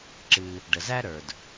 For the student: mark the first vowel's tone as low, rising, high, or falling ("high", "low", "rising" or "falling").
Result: low